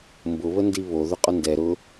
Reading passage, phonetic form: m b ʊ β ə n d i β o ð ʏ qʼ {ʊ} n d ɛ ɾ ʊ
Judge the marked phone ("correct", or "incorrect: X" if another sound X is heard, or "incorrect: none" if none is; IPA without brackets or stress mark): correct